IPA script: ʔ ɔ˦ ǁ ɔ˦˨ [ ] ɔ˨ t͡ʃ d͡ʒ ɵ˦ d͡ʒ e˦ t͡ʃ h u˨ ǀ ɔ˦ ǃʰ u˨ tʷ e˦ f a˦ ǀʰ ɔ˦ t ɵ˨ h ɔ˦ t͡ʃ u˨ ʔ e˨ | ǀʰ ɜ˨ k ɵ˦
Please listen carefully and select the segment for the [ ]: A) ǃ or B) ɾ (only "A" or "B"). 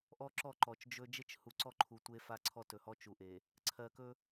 A